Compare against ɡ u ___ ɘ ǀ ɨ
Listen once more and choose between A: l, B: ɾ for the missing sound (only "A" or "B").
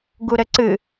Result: B